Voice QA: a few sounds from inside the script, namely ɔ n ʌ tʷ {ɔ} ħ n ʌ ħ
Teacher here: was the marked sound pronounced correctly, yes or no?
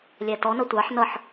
no